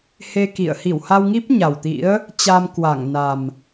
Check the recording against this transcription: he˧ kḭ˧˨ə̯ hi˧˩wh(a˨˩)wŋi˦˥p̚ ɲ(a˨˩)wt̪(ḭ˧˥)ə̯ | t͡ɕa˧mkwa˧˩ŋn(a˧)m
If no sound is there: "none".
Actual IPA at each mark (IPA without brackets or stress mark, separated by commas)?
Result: a˧, a˨˩, ḭ˧˥, a˨˩